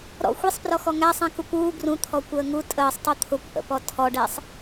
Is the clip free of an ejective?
no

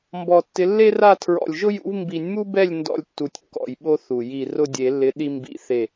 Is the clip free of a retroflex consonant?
yes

